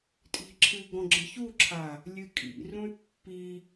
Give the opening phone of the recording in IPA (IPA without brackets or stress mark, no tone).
tʼ